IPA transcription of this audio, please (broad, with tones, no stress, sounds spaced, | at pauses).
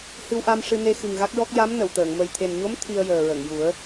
h ɨ˧ w ʔ a˧ m ʂ ɨ˧ n e˧ x ɨ˨˩ ŋ ɣ a˦˥ k̚ ɹ ɔ˦˥ k̚ j a˧˥ m n ə˨˩˨ w t̪ əː˨˩˨ ŋ m ə˨˩ j t̪ʰ e˨˩ n ɲ o˧˥ m t̪ʰ i˧ ə̯ j əː˨˩ ɹ ə˨˩˨ ŋ j u˨˩˦ ə̯